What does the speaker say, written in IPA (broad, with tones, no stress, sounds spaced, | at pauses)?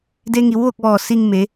d e˧ ŋ i˩˧ w ʋ o˥˨ k̚ ʋ ɔː˧˩ s i˧ ŋ m e˩˧